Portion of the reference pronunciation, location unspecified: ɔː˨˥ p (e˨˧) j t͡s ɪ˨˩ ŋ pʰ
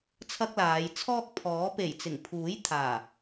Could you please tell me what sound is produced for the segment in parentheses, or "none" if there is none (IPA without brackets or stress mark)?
e˨˩